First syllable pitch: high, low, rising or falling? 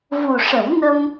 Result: low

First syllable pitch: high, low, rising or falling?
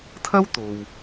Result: high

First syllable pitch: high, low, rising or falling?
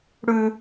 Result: low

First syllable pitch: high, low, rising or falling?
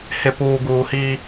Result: low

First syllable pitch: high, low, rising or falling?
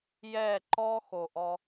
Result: falling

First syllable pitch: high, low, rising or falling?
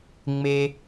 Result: high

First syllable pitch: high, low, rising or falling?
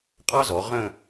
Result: high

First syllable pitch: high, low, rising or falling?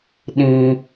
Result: high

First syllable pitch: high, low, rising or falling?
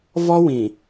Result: high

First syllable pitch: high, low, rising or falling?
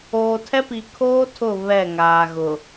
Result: low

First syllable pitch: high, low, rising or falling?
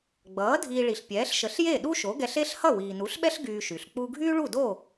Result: rising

